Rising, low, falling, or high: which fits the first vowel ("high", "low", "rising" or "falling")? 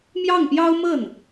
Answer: falling